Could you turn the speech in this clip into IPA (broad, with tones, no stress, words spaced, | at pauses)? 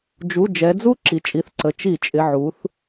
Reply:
d͡ʒu˩˧˩ d͡ʒɛ˩˧d͡zu˦˥ ǁi˩˧t͡ʃʼi˩˧˩θǀə˩˧ t͡ʃi˧˩˧ t͡ʃʼɪ˩˧˩ ʕu˩˧θ